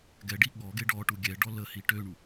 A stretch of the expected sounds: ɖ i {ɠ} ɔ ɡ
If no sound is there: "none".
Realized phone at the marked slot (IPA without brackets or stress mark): ɠ